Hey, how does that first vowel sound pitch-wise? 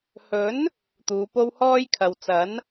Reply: rising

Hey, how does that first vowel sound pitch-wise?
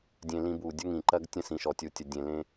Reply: high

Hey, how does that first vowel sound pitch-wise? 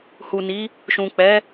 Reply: low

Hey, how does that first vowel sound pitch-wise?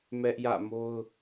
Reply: high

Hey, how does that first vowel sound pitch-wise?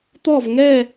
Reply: falling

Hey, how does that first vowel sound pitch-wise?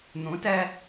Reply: rising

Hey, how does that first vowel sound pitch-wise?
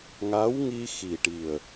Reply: rising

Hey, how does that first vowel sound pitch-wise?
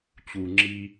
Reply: low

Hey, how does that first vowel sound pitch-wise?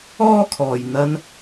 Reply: high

